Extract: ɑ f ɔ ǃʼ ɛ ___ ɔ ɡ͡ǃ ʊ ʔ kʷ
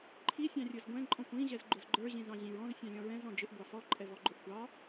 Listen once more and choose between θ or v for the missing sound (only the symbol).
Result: v